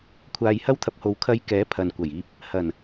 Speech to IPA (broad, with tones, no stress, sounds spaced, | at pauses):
kʷʰ aː˧ j h ɐ˥ w t̪ʰ ɐ˧ p̚ h o˨˧ w kʰ ɐ˧ j k ɛː˨˥ pʰ ɐ˨ n kʷ ɐ˨˩ j iː˧ p̚ | h ɐ˨˩ n